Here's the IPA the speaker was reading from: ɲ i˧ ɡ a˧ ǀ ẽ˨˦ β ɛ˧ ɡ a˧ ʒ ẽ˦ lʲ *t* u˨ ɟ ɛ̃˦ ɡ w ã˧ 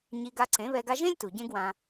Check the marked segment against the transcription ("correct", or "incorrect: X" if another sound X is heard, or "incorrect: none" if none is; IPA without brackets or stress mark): correct